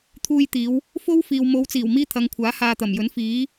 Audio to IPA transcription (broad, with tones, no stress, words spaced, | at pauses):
t̪ʰuː˧jt̪iː˨˧w | fo˥wfiː˨w mo˨˧wt͡siː˨˩w miː˥t̪ʰɐ˨˧ŋkʷʰaː˨˥ haː˧t̪ɐ˨˩mjɵ˨˥n fiː˨˥